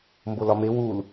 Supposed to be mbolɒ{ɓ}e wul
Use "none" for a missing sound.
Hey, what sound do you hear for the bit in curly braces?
m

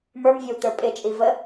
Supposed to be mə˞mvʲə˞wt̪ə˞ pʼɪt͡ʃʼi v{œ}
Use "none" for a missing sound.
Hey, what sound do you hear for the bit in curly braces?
ə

